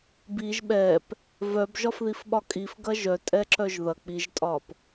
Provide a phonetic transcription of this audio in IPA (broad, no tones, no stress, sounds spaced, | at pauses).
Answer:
b i ʒ ɓ ɛ p | v œ b ʒ ɒ f ð i f ɓ ɒ kʼ i f ɡ ɐ ʒ œ tʼ ɛ ǁ œ ʒ ð ɐ k͡p i ʒ tʼ ɒ p